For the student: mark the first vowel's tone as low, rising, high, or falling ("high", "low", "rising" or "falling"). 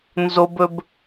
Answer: high